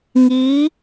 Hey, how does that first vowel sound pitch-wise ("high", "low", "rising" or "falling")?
rising